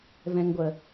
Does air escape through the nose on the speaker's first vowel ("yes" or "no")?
yes